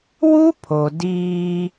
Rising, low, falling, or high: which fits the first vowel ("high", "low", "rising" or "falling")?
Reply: high